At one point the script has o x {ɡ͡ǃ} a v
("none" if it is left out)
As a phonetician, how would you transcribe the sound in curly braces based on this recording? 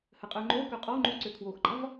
ɡ͡ǃ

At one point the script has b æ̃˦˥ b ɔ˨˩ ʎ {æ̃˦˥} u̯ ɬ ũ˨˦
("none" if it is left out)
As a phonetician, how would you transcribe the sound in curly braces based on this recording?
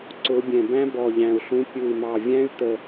æ̃˨˩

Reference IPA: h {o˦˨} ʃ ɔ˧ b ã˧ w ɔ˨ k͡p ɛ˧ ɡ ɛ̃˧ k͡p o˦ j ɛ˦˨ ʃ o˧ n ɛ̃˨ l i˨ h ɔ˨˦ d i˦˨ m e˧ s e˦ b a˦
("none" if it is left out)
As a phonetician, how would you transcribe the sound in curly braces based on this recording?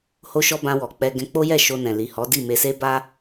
o˧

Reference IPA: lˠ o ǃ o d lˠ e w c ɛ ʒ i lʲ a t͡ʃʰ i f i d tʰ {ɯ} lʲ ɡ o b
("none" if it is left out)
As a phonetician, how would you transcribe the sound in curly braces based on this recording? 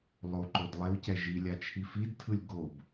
ɯ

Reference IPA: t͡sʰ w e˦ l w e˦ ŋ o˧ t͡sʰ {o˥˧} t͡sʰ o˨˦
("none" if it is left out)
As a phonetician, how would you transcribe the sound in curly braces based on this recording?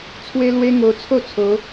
o˥˧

